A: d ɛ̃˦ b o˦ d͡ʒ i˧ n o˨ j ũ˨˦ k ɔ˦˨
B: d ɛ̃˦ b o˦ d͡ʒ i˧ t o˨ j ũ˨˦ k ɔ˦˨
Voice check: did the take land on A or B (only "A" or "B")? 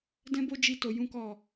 B